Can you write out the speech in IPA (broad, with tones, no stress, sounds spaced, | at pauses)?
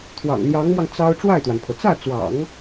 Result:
t̪ʰ w ɑ̰˨˩ ŋ n̪ j ɑ˧˥ ŋ m w ɑ˧ ŋ t͡s ɑ˥ ʊ̯ ʈ͡ʂ w a˥˩ ɪ̯ t̪ w a˩ n pʰ ɤ˩ t͡s ä˥˩ t͡s w ɑ̰˨˩˦ ŋ